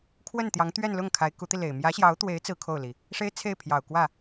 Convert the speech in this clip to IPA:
kʰ w ə˥˩ n t̪ j ɑ˧˥ ŋ t̪ ɥ ɛ˥˧ n l ʊ˥˩ ŋ kʰ a˧˥ ɪ̯ k u˧˥ t̪ i˧ l e˨˩ ɪ̯ m j ä˧˥ ɕ j ɑ˧˥ ʊ̯ t̪ w e˧˥ ɪ̯ t͡s ɹ̩˥ kʰ o˥˩ ʊ̯ l i˩ | ʂ e˥ ɪ̯ t͡sʰ e˥˩ ɪ̯ pʰ j ɑ˨˩ ʊ̯ k w ä˥˩

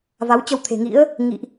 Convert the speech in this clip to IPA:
v a˨˦ w t͡ɕ ə˧ w t̪ʰ e̤˨˩ ŋ ḭ˧˥ ə̯ | ŋ ḭ˧˨ ʔ

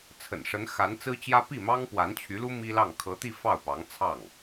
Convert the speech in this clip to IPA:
t͡sʰ ə̰˨˩ n ʂ ə˧˥ n x a˧˥ n t͡s ɹ̩˥ t͡ɕ j ä˥ p i˥˩ m ɑ˥ ŋ p w a˧˥ n t͡ɕʰ y˧˥ l u˥ m i˥ l ɑ˥˩ ŋ kʰ ɤ˧˥ t̪ i˥˧ f ɑ˥˩ ʊ̯ p ɑ˧˥ ŋ t͡sʰ ɑ˥˩ ŋ

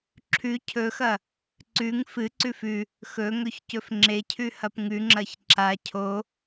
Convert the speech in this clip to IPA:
ǁʰ ʉ cʰ ɵ x ɐ | ǀ ʉ ŋ f ɨ ǀ ʉ f ʉ | x ɵ ŋ ɵ ç c ɵ f ŋ͡ǁ e cʰ ʉ h ɐ p ŋ ʉ ŋ͡ǁ ɐ ç ǁ a cʰ o

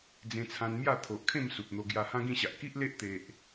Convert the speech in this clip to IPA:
d͡z ẽ˧ t͡sʰ ã˧ n m j a˥˧ t̪ʰ o˨ ʔ kʰ ẽ˥˧ m s u˨ p̚ n̪ o˧ ɡ j a˧ h ã˦ ɡ ĩ˥˧ ɕ a˨ ʔ k i˦ ʔ l e˦ ʔ t̪ e˨ ʔ

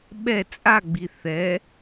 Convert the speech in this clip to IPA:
ɓ ɛ t͡sʼ a ɡ͡b i θ ɛ

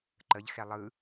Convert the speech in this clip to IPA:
ǃ ə ʎ x ɛ lˠ ɯ

